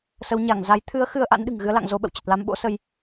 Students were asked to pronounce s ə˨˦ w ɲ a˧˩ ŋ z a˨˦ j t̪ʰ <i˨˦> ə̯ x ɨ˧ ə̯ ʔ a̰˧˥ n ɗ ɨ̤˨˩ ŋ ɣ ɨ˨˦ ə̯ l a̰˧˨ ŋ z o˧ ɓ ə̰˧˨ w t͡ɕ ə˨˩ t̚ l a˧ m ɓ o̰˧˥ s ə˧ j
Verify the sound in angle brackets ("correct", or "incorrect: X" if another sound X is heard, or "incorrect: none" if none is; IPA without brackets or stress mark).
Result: incorrect: ɨ˨˦